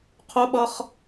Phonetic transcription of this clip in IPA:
qʰʊɓʌχ

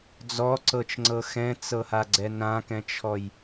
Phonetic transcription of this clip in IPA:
d͡zɔǀɤt͡ʃŋ͡ǀɤ xɛ̃t͡sɤhaɡ͡ǀɛ nãkɛ̃t͡ʃʰɔj

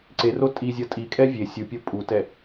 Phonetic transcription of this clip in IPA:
ǀero tʼizʲʌ tʼikʼɛ vʲe sʲupʲo pʼutɛ

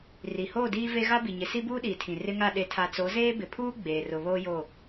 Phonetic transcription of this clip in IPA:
ri˨hoː˦˨diː˦ve˦ ɣa˦bi˨ɲɪ˨ si˦buː˦ɗiː˨tʰĩ˨ rɪ˦ŋa˦˨ ɗe˨tʰa˨t͡so˨˦ zeː˦bɪ˨pʰuː˦ ɡ͡beː˨rʊ˨βoː˦jo˦˨

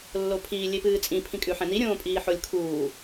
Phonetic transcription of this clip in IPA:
lːopʰiː lʲepɨːt͡sʼĩ pʰĩkʼʉħɛ̃ni ɾʲõːpʼiːħolʲkʰuː

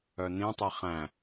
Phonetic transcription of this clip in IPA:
œnĩtˤi χæ̃

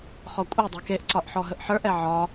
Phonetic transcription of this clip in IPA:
χɔkʷʼɛdˤe keʔǀɒʔ ħɔɦəʔħə˞ʔɛ ʕɒ

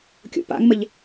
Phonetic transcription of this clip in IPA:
kʲo̰pa̰ŋməʎ

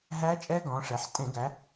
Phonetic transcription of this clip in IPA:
ɦæ˦˥t͡ʃʼɛ˦˥ɡɔ̃˩˧ʂɛ˩˧ħ tʼẽ˧˩˧ɡæ˩˧

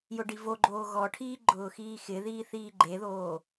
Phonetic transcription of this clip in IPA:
jʊɖivoɡ͡ǃoː ɣɔʈʰiː ɡ͡ǃʊːxiːxɪðiː θiːɡ͡ǃeðoː

